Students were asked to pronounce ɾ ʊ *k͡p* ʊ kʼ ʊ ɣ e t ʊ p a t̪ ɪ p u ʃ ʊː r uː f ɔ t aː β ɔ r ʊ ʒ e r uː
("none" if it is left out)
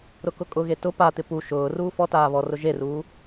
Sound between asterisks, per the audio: k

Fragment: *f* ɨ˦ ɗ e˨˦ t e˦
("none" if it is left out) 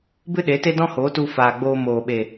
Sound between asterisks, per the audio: b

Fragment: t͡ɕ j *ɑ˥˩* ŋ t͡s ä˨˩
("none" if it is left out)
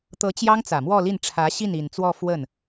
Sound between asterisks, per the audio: ɑ˥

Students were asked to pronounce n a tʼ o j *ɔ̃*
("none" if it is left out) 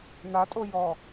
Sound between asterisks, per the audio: ɔ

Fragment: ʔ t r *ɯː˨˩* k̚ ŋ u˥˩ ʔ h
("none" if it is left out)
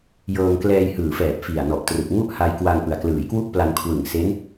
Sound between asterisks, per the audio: ɯ˨˩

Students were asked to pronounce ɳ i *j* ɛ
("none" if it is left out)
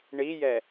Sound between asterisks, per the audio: j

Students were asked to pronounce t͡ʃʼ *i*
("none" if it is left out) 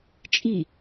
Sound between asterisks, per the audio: i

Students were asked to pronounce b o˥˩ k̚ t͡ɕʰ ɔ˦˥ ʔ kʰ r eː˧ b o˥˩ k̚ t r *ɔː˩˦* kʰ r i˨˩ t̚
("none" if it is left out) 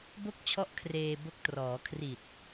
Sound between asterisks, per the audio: ɔː˩˦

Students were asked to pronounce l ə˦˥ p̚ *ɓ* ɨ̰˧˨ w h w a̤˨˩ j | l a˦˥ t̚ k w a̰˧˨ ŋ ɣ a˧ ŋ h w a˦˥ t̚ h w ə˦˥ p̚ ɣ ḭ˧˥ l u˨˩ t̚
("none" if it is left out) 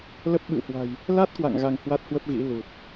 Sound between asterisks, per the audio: ɓ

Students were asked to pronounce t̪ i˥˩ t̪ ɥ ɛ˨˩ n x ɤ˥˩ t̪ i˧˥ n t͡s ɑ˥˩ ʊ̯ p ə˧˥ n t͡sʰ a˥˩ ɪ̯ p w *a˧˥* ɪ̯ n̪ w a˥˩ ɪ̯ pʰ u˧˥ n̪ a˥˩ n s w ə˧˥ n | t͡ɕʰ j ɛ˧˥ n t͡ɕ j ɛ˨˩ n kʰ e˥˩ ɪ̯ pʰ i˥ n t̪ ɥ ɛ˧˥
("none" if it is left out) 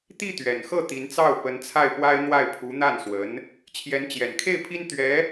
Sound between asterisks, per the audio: a˥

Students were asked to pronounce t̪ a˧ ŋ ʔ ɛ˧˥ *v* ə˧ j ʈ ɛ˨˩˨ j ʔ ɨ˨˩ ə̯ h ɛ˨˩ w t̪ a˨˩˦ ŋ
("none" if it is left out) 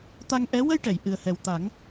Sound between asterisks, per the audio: w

